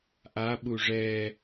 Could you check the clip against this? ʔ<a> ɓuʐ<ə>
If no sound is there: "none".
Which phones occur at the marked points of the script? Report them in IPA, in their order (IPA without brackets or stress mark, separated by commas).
a, ɛ